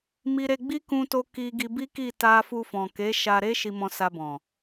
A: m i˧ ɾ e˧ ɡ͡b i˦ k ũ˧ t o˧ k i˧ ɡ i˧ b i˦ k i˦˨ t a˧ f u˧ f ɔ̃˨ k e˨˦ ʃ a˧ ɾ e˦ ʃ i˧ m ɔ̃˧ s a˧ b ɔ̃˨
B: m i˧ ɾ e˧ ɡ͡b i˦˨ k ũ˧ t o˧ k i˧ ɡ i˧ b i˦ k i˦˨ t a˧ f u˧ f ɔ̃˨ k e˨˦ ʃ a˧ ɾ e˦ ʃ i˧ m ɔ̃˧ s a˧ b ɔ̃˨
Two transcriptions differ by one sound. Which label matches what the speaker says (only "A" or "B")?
A